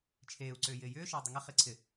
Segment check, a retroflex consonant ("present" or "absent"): absent